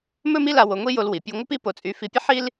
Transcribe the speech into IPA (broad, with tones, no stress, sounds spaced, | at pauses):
m ɵ˥ m i˥ l a˧ w o˧ ŋʷ i˥ j o˧ l w i˩ pʲ u˧ ŋʷ ə˥ p i˥ p o˧ t͡sʼ y˧ f i˧ pʲ ə˥ ħ i˥ l